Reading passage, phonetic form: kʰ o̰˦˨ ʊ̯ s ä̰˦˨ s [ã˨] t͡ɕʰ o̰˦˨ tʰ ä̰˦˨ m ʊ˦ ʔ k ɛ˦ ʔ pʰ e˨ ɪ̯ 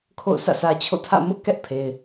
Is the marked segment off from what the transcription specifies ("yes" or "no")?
yes